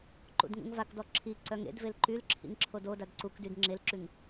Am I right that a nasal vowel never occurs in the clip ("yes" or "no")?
yes